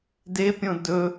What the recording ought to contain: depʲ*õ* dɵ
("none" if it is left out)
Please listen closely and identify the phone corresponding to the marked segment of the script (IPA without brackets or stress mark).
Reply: õ